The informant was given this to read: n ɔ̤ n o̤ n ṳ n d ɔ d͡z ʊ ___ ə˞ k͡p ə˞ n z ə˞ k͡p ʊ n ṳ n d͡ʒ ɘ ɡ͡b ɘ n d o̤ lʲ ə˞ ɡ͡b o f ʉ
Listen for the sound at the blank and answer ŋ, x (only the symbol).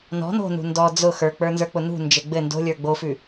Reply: x